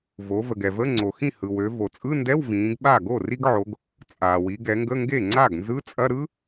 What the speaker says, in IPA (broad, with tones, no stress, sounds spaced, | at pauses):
v o˩˧ v ə˩ ɡ ɛ˩ v ə˧˥˧ ŋ͡ǀ o˩ x ĩ˥˩ h ɯ˩ w ø˩˧ v o˩ t͡sʼ ɯ˧˥˧ n d ɛ˧˥˧ w v ĩː˩˧ ɡ ɓ a˥˩ ɡ o˥˩ r i˥ ɡ ʕ o˩˧ ɡ | t͡sʼ aː˩ w i˩˧ ɡ ɛ˩˧ ŋ ɡ ə˧˥˧ ŋ ɡ e˥˩ ŋ͡ǀ a˥˩ ɡ n z ɯ˧˥˧ t͡sʼ ɐ˧˥˧ ɾ ɯ˥